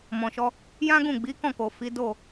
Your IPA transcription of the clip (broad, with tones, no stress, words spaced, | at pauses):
mɔ̃˨ʃɔ˧ | jã˦ɡũ˦˨ ɡ͡bi˨˦kɔ̃˦˨ko˨fi˨˦ do˦˨